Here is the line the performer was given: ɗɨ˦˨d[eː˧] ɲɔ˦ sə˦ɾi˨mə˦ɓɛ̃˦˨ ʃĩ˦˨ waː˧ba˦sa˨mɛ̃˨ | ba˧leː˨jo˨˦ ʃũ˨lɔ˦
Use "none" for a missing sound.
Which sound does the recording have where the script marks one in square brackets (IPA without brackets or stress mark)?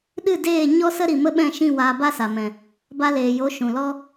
eː˦˨